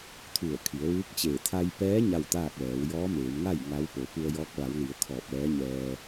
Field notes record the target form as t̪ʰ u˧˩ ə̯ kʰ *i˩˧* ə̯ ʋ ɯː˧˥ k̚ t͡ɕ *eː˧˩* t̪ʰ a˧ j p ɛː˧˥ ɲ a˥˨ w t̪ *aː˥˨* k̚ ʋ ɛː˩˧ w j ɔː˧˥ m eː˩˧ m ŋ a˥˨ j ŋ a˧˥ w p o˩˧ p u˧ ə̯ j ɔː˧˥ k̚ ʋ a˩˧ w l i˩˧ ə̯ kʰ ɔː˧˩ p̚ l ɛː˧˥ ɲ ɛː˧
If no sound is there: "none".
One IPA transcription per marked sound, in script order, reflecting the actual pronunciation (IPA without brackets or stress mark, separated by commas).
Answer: i˩˧, eː˧˩, aː˥˨